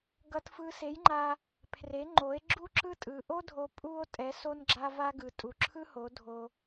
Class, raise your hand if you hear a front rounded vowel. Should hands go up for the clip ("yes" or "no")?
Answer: no